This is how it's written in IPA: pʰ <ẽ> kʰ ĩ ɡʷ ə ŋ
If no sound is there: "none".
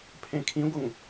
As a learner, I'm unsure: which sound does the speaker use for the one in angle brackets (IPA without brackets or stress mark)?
ẽ